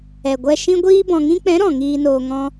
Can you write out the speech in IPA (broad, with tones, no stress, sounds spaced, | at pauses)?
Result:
ɛ˨ ɡʷ ɛ˧ ʃ ĩ˦ ɡʷ iː˦ b ɔ̃˨ ŋ ĩ˧ k͡p ɛ̃˨˦ ɾ ɔ̃˨ ŋ iː˧ n oː˧ ŋ ɔ̃˦